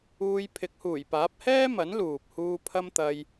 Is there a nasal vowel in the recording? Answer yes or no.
no